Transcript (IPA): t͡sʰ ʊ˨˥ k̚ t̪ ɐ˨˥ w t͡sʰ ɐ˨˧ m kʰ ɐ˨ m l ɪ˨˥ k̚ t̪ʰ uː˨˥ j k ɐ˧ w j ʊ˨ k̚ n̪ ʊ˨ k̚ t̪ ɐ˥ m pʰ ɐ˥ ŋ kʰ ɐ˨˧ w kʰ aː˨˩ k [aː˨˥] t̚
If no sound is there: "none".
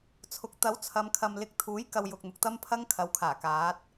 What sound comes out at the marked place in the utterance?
aː˨˥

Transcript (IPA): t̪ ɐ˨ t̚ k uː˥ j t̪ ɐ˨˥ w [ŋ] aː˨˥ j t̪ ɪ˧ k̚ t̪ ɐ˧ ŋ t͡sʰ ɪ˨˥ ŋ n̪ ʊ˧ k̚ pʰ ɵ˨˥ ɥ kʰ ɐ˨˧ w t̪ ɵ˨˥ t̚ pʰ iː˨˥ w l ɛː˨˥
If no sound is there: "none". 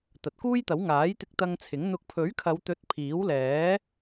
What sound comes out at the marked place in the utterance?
ŋ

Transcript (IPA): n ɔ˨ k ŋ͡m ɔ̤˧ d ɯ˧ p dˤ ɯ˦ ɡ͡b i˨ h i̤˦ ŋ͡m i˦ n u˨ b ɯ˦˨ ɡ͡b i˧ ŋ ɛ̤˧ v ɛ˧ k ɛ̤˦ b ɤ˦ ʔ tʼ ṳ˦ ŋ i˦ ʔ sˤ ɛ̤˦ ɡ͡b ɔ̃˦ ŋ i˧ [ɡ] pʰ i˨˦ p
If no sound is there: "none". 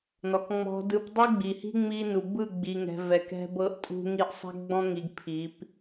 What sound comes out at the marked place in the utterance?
ɡ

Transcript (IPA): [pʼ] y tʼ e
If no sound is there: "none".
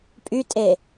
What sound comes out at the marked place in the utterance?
pʼ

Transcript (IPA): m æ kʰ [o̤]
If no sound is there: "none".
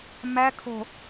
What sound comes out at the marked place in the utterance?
o̤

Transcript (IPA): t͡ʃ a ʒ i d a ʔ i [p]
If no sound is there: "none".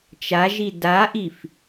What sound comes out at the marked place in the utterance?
f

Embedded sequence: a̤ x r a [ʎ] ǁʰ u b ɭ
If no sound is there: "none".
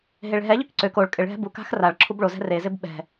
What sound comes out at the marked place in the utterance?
ɭ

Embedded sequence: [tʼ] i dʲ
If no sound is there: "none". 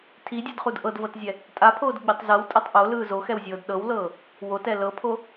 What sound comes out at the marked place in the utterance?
tʰ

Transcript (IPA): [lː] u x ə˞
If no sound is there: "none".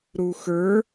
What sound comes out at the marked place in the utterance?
ɾ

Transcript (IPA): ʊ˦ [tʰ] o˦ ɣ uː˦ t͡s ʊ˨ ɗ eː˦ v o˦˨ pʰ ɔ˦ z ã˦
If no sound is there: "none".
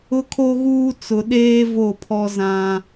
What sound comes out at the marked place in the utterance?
kʰ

